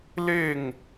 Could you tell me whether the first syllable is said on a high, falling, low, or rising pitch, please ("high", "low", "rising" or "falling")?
falling